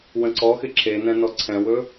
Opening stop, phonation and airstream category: click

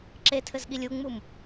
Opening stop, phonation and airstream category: click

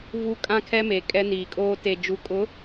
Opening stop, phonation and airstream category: ejective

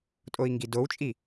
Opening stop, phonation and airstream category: ejective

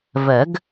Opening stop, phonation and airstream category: plain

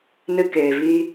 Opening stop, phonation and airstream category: plain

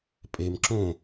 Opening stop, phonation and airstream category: ejective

